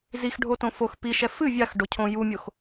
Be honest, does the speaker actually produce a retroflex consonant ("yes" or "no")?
yes